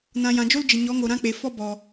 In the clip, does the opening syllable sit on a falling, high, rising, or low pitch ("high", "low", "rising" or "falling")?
low